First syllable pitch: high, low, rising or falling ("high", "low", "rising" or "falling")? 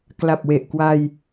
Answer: low